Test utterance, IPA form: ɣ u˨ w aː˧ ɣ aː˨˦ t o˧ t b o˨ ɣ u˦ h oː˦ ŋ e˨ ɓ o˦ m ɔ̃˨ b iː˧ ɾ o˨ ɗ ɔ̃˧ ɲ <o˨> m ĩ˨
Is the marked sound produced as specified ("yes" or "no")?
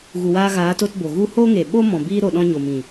yes